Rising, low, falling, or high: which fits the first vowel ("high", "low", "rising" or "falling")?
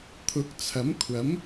rising